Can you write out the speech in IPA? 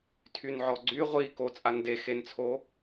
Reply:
tʰ y n ʕ ɔ ɡ͡ǀ y ʁʷ i k o t͡sʼ a n d e x e n t͡sʰ o

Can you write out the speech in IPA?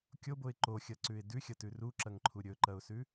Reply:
kʲ o b o ɪ̯ ǃ o xʲ ɐ ǀ ʉ ɪ̯ d ʉ xʲ ɐ t ʉ r u ǁ ɐ ŋ ǃʰ u ɾʲ ɵ ǃ ɐ ʊ̯ s ʉ

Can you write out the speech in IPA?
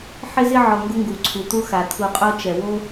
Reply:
ħ ɪ˥ z ɪ˥ ʕ ɔ˨ ŋ ɡ ʊ˦ ŋ ɡ u˩ ǀʰ u˩ t̪ u˦ x a˩ t̪ʰ u˨ qʼ o˦ t͡ʃ ɛ˩ w o˥

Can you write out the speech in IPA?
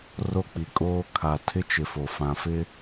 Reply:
r o˦ k͡p i˨ kʼ oː˦ kʰ a˨ tʰ ɪ˦ t͡ʃ ɪ˨ f o˨ f ã˨ f ɪ˦

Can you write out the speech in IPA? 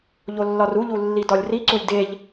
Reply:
ʎ o lː ɒ r u ʎ u lː i d ɒ lʲ r i ǀ u lʲ d e ʎ

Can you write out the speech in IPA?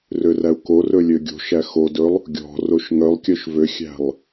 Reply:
r ø r æ u̯ k o r ɵ lʲ ø ɡʲ o̤ ʃ æ x o d ɵ lˠ | ɡʲ ɔ̤ r o ʃ ŋ œ lˠ kʲ œ ʃ v ø xʲ æ̤ lˠ

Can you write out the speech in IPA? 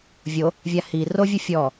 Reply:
vʲ o | vʲ a h i r o vʲ ɯ fʲ ɔ

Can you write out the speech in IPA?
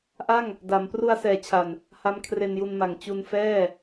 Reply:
ʔ a˥˩ ŋ | d a˩˦ m p r u˧ a̯ s ɛː˩˦ t͡ɕʰ a˨˩ n | h a˦˥ m kʰ r e˧ n j u˧ n m a˨˩ ŋ t͡ɕ u˧ n f ɛː˥˩

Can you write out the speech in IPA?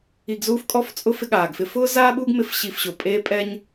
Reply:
i˧ ɡ z uː˥ f kʼ ɔ˥ f t͡sʼ ʊ˥ f ɪ˥ ɠ aː˩ ɡ f ɪ˥ f ʊː˥ z aː˥ ɓ uː˥ ɡ m ɪ˧ f ɕ i˧ f ɕ ʊ˩ pʼ eː˥ pʼ ɛ˥ ɲ

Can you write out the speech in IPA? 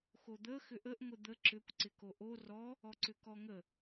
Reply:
x o d̪ ə x ʏ ʔ ə ʔ ŋʷ ɪ d̪ ə ǁ ʏ kʷ ǀ ɪ k o ʔ o r ɔ | ɔ ǀ ʏ k ɔ ŋ ə

